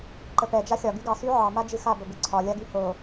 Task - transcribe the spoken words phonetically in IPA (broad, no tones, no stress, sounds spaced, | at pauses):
ǃ ə p ɛ d͡ʒ a xʲ ɒ ɡ y ɡ ɑ s y ʕ ɑ m a d͡ʒ ɨ x a b ə b ɨ ǀʰ ɒ lʲ a ɡ y h o